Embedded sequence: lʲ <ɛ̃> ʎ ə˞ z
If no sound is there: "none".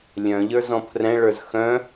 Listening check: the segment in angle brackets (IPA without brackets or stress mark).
œ̃